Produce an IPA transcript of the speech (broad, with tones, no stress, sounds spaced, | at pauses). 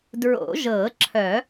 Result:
d ɹ o̰˨˩˦ ʒ ɤ˨˩˦ ǁʰ œ˨˩˦